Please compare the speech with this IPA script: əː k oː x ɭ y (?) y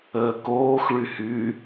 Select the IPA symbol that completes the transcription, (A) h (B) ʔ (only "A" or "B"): A